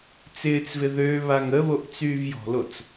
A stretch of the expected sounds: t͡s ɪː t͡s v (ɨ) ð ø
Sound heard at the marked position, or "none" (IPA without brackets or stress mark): ɪ